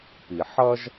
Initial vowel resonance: oral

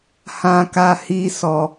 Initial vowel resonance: nasal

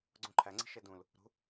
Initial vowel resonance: nasal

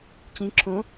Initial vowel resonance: nasal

